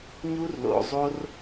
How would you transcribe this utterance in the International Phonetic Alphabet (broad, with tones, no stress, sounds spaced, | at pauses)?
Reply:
ɲ u˦ r l o̰˨ zˤ o˦ r